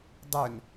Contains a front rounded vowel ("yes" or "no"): yes